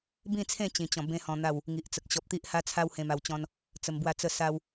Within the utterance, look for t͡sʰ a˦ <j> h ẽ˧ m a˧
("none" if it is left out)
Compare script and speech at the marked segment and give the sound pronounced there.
w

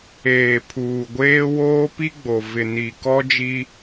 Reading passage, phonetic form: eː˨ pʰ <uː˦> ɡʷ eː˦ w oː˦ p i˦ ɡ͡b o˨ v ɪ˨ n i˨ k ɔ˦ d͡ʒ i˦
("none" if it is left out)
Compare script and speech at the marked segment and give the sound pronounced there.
uː˨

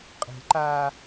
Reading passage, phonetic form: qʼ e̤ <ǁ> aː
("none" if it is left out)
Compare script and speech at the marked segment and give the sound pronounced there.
ǃ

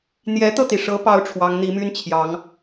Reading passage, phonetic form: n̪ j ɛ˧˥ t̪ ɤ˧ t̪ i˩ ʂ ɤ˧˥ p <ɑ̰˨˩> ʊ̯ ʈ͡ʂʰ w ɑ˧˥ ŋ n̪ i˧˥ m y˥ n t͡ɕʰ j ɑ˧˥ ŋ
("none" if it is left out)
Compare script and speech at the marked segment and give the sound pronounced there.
ɑ˥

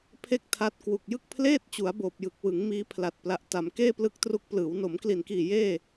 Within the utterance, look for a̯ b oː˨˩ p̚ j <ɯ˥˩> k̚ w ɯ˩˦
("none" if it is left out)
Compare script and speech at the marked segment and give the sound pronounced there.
ɯ˨˩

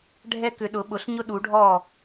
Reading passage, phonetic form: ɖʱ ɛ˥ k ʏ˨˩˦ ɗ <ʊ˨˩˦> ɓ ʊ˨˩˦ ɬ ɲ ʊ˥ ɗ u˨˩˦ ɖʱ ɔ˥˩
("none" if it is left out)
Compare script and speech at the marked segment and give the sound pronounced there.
ʊ˨˩˦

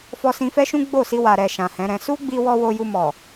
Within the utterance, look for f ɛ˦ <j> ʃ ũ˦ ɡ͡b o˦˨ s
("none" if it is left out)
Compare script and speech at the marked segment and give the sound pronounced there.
none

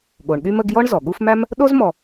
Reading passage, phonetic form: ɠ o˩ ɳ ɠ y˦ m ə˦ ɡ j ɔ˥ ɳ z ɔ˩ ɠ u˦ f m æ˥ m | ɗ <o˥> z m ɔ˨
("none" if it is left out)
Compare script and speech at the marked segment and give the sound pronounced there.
o˥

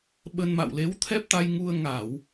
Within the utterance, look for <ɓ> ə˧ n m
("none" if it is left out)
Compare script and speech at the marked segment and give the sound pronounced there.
ɓ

